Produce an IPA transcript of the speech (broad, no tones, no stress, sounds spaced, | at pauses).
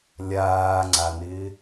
lʲ aː ŋ͡ǀ a n ɪː